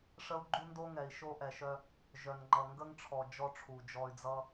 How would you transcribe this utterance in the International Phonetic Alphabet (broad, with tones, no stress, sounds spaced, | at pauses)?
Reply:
ʂ ə˦ u̯ ɡ͡ǃ u˦ n d o˦ ŋ ɛ˨ i̯ ʃ o˦ ʔ ɛ˨ ʃ œ˦ | ʒ œ˨ n ŋ͡ǃ ʌ˨ ŋ ɡ ə˦ ŋ ʈ͡ʂʰ ɔ˨ d͡ʒ ɔ˦ ʈ͡ʂʰ u˨ d͡ʒ ɔ˦ y̯ d͡z ʌ˦